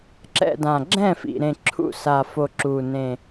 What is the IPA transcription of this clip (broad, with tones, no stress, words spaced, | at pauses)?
ǁɛ̰˥˩dã˨˩ ɡ͡ǁɛ̃˥˩fḭ˨˩ɾẽ˨˩ ǁʰṵ˥˩sa˨˩fo˨˩ ǁu˨˩nẽ˨˩